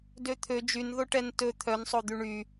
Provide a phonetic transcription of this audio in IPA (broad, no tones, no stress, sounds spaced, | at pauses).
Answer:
d ø t̪ʰ ø d͡ʒ y n ð o ʈ ɛ n t ɵ t̪ʰ œ n sˤ o d̪ y ɳ y